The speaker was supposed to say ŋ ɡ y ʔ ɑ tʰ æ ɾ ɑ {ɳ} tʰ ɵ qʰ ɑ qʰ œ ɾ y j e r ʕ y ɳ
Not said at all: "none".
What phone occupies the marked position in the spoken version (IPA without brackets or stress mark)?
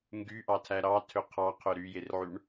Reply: none